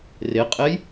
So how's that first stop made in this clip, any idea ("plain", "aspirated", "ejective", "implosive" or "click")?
ejective